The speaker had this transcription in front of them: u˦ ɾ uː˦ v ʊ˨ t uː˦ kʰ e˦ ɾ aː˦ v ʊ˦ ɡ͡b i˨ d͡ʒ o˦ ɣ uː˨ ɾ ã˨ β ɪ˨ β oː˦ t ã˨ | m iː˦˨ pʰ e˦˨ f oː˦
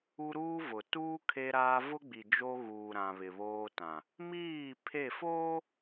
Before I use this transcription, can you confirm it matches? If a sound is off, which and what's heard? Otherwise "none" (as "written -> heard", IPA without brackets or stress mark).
none